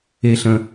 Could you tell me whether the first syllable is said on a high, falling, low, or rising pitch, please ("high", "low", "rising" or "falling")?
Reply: low